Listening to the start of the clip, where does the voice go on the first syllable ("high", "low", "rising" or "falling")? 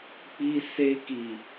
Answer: high